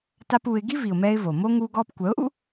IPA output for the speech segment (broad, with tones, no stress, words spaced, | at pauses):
ta˦puː˧ɪ̯ ɡi˦vi˨ʊ̯mɛː˧ɪ̯ vo˨ moː˦ ŋuː˧ɡɔː˧pkʷœ˨˦ʊ̯ʔṵ˦